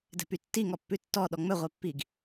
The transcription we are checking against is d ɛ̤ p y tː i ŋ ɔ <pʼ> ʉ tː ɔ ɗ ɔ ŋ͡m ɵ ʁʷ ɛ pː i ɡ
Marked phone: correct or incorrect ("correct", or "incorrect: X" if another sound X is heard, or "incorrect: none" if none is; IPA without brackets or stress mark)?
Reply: incorrect: pː